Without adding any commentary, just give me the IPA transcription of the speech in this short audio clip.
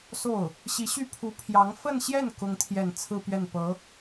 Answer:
s o˥˩ ʊ̯ | ɕ i˧˥ ɕ y˥˩ pʰ u˧˥ pʰ j ɑ˧˥ ŋ f ə˥˧ n ɕ j ɛ˥˩ n k ʊ˥ ŋ t̪ʰ j ɛ˥˧ n t͡sʰ ɹ̩˥˧ p ɥ ɛ˥˩ n p ɤ˧˥

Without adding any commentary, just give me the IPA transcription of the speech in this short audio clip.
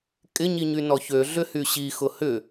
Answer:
kʼ ɪ ɲ i ɲ y n ɔ ç ø ɮ ʏ h y ɕ i x ʊ h ʏ

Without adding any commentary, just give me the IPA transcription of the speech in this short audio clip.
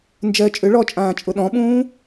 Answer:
n d͡ʒ ɜ t͡ʃʼ ʏ ɭ ɔ t͡ʃʼ ãː t͡ʃʼ ʊ ɗ ɔ̃ ɓ ũː

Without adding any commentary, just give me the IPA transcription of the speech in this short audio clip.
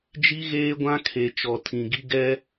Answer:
d͡ʒ i˦ ɣ eː˦ ɡʷ ã˦ kʰ e˨ t͡ʃ ɔ˨ tʰ ĩ˨ ɡ i˦ ɡ ɛ˦

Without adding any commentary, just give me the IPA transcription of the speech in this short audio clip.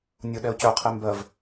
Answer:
nʲ ʊ ɗ ɛ ʊ̯ c œ qʰ e m b ɜ v

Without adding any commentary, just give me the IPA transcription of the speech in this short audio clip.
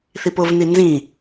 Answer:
θ i p ʊ v n i n z ĩ

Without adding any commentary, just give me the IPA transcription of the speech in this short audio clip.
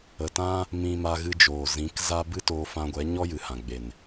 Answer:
ə˨ t ã˦ | m ĩ˧ m a˧ ɣ ɨ˧ d͡ʒ oː˨ z ĩ˨˦ k z a˦ b ɨ˦ t oː˧ f ã˧ ɡʷ ɛ˨˦ ɲ ɔ˦ j ɨ˨ h ã˨ ɡ͡b e˨ n

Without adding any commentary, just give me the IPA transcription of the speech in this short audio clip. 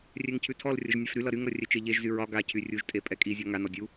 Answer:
rʲ ɛ ŋ cʰ ʉ tʰ ɔ l rʲ ʌ ʒ nʲ a f ɾ y l ʌ ɾ y ŋ ɾ ʌ rʲ ɛ t͡ʃ e ʎ e ʒ z y ɹ ɒ ɡ a cʰ y rʲ u ʒ tʼ e pʼ ɛ kʼ i zʲ ɔ ŋ a n ɔ dʲ u

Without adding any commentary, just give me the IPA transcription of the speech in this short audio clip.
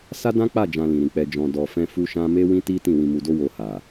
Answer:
s a˦ d ã˦ k͡p a˦˨ d͡ʒ ã˧ l ĩ˨ ɾ ĩ˨ k͡p ɛ˧ d͡ʒ ɔ̃˧ d ɔ˧ f ɛ̃˦ f u˦ ʃ ã˦ m e˦ w ĩ˦ t i˦ t ĩ˦˨ w ĩ˧ m u˧ d o˦ w o˧ h a˨

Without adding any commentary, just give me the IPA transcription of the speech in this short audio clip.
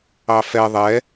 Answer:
ɑ f ɛ ðˤ ɛ

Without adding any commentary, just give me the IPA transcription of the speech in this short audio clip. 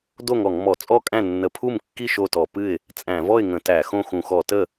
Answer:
d o˥˩ ŋ ɔ˧˩˧ ŋ m ɔ˧˩˧ t͡sʼ ɔ˥˩ kʼ æ̃˥˩ nː ə˧˩˧ pʰ u˥˩ m kː i˥˩ ʃ o˥˩ t ɔ˧˩˧ p ɨ˥˩ ɪ̯ | t͡sʼ æ̃˧˩˧ v ɔ˥˩ ɪ̯ ŋ ə̃˧˩˧ t æ˧˩˧ x õ˥˩ x ũ˧˩˧ x ɔ˧˩˧ t ə˥˩

